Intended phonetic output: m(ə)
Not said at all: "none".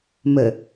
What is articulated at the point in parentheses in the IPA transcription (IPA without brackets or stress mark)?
ə